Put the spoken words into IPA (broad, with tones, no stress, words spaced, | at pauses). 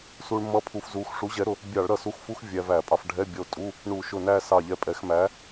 su˧ɭ mʌ˧˥˧pʰu˧fzu˨˥x ʂu˨˥ʑɛ˨˥ɾʊ˧ | bʲɑ˧˩˧ɭɾʌ˧˩su˨˥xfu˧˥˧x vʲæ˧væ˧˩˧pʼɑ˧f ɖʱɛ˧˥˧bʲʌ˧o̯tʼu˧˥˧ | ɳu˧˩˧ʃʊ˧˩næ˥˧sɑ˧˩ ʎɛ˧pʼɛ˧˩˧xmæ˨˥